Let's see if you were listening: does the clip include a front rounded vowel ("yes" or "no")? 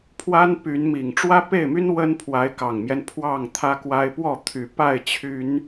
yes